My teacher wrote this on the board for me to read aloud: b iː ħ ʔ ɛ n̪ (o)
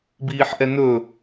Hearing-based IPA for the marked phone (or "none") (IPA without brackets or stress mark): ɵ